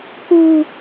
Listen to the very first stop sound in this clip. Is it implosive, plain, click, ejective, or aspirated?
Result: plain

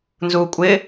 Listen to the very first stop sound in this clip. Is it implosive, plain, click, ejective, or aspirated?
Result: ejective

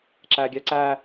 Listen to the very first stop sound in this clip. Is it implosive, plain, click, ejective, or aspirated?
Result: click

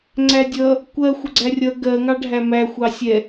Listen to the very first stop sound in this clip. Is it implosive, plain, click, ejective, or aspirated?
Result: click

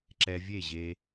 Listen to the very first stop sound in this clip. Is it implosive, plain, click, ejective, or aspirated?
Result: click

